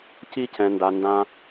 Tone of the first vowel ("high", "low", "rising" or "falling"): high